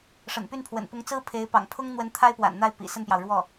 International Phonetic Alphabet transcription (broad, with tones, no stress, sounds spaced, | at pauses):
ʂ ə̰˨˩ n p y˥˩ n pʰ w ə̰˨˩ n p ʊ˧˥ ŋ t͡s ɹ̩˥ pʰ e˧˥ ɪ̯ p ɑ̰˨˩ ŋ pʰ ʊ˥ ŋ n̪ w ə˧˥ n t̪ʰ a˥ ɪ̯ p w a̰˨˩ n n̪ a˥˩ ɪ̯ p ḭ˨˩ s ə˥˩ n p j ɑ˩ ʊ̯ ɻ w ɔ˥˩